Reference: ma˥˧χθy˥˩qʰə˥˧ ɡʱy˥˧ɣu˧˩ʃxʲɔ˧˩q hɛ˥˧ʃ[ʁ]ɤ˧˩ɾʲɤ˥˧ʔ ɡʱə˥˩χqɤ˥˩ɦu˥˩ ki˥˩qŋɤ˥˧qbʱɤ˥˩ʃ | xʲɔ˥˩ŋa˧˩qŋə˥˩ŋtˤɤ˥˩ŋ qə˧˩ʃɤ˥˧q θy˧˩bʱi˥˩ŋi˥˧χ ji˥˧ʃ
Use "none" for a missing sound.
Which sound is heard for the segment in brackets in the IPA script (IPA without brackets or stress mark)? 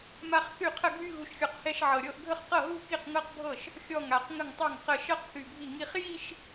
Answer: ʕ